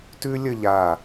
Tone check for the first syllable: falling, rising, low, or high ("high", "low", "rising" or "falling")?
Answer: high